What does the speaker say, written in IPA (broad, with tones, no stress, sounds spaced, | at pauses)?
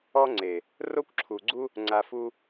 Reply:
ɔ˦ ŋ͡ǀ e˨ | r o˦ kʷ ǁʰ u˨ ɡ͡ǀ u˦ | ŋ͡ǀ a˧ f u˦